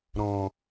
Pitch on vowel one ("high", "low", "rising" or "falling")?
low